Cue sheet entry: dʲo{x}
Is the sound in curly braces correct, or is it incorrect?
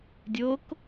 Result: incorrect